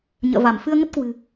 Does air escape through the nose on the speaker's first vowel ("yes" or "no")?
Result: no